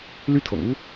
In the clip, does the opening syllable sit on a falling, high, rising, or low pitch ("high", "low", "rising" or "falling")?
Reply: high